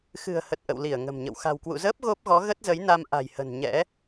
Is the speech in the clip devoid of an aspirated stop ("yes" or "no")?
yes